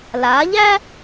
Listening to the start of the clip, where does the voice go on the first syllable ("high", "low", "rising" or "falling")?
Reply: rising